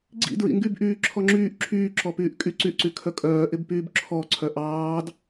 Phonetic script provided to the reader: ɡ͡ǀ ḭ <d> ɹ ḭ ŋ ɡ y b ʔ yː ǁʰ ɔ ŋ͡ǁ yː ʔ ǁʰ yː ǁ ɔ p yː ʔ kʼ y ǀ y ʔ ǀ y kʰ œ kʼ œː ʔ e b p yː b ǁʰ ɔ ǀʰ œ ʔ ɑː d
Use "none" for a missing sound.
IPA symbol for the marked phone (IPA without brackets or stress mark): d